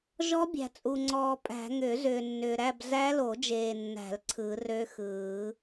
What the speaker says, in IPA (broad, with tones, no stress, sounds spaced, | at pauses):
ʒ ɔ˦˥ bʲ æ̤˨ t͡sʼ u˨ ŋ͡ǀ ɔː˨ pʼ æ̤˨˩˦ ŋ ʏː˨˩˦ z ʏː˨ nː ʏː˨ ɾ æ˥˧ b z æ˦˥ l o˨˩˦ d͡ʒ eː˨ nː æ̤˨˩˦ l ǀʰ ɯ˨˩˦ r ø˦˥ x ɯː˨˩˦